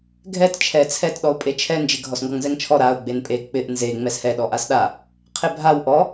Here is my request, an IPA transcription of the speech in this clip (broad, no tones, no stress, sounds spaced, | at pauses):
ɡʱ ɛ t t͡ʃʰ ɛ t͡sʰ ɛ t ɗ ɔ ʊ̯ pʼ e t͡ʃʰ ɛ n d͡ʒ ɪ ɡʱ ɔ s ŋ ɡ ɔ ŋ z ɛ ŋ t͡ʃʰ ɔ ɾ a ʊ̯ ɡ͡b e n pʼ e k͡p ɪ ʔ n z e ŋ͡m ɛ s h ɛ ɗ ɔ ʔ a s ɗ a | qʰ e bʱ a w ʔ ɔ